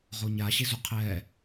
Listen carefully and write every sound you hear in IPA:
ʁ o ɲ a ɕ e z u qʰ ɛ

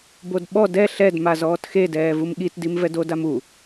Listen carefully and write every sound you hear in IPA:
b o d ɓ ɔ d ɛ ɬ ɛ d m a z ɔː t x e d ɛː v u m ɠ i t d i m v ɛ d o d a m u

